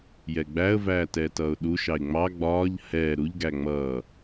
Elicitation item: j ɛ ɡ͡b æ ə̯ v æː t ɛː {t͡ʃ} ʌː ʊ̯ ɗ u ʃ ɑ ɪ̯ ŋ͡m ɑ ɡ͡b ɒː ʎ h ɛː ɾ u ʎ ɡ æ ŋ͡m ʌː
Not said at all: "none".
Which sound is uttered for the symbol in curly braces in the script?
t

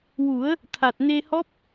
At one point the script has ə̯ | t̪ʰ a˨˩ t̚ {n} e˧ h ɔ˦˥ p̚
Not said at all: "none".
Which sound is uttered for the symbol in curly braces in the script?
n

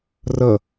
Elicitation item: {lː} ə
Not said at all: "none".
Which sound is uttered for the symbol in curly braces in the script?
r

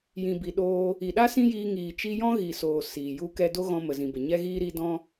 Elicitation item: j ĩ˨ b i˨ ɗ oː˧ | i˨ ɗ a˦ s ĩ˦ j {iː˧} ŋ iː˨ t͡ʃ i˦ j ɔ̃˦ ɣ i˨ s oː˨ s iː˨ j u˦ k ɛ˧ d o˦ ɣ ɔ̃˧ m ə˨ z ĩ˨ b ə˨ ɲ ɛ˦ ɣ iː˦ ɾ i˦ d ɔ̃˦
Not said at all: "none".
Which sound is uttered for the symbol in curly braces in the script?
iː˧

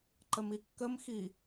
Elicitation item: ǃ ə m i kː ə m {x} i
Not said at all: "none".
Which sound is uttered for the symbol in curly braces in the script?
x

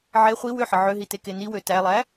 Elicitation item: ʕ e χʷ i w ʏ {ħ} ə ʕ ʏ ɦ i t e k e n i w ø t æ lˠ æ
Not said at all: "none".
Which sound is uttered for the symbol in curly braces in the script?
ħ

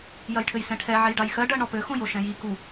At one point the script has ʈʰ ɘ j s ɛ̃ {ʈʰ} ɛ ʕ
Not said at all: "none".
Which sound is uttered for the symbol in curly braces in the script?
ʈʰ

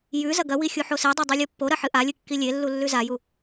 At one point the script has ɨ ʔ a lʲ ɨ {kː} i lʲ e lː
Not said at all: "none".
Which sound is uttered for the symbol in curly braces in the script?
kː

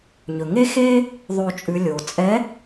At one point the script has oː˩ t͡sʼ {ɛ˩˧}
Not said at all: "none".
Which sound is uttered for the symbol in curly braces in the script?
ɛ˨˥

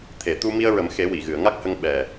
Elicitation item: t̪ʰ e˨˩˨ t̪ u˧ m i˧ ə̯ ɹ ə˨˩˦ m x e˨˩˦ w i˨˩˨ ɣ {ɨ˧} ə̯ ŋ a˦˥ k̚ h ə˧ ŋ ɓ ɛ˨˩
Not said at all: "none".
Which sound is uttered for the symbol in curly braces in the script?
ɨ˨˩˨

